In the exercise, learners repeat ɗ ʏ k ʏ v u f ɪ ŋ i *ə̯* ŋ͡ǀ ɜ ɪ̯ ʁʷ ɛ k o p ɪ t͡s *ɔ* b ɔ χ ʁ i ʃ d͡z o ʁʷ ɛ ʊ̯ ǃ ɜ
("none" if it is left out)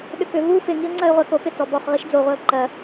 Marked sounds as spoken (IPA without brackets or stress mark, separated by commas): ə̯, ɔ